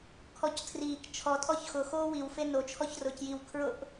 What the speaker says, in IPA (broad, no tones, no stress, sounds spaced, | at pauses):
kʰ ɔ c tʰ r iː k t͡ʃʰ ɔ tʼ ɔ ç x ʊ x oː w i w f e n o t͡ʃʰ ɔ ç r ʊː c j i w kʰ ɹ ʊ ʔ